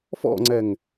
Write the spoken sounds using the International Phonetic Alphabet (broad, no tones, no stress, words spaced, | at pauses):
fɔ̰ŋ͡ǀɛŋ